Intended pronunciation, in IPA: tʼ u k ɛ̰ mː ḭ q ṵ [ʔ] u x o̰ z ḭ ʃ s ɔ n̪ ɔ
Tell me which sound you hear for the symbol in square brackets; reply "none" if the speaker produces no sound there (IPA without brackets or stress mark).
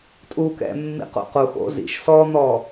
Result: q